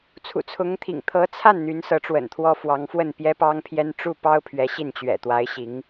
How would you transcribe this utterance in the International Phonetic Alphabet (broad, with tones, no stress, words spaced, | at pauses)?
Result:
t͡sʰṵ˨˩t͡sʰʊ˧˥ŋt̪ʰḭ˨˩ŋ t̪ʰɤ˧˥t͡sʰa˥˩n n̪y˧˥nsɤ˧˥ʈ͡ʂwə̰˨˩nt̪ʰwɔ˥ fwɑ˧˥ŋfwə˥˩n pjɛ˥pɑ˥ŋpʰjɛ˥n ʈ͡ʂu˥˩pɑ˥ʊ̯ pʰɥɛ˧˥ ɕi˥˩nt͡ɕɥɛ̰˨˩ t̪wa˧˥ɪ̯ɕi˧˥ŋ